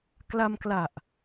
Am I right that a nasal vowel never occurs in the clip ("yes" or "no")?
yes